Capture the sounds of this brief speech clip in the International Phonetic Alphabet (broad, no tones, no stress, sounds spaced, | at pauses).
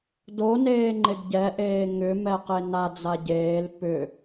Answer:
d o n eː ŋ͡ǃ e ɡ ɟ ɛ ʔ eː ŋ ʏ m ɛ q e n a d͡z a ɟ eː l p ʏ